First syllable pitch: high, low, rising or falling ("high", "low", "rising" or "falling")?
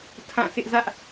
falling